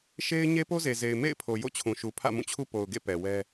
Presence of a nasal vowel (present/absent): present